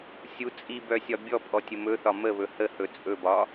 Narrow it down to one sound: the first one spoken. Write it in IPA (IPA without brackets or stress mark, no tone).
sʲ